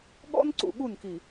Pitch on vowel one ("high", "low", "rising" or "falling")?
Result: high